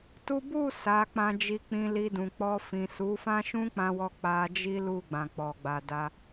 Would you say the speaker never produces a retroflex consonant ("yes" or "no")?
yes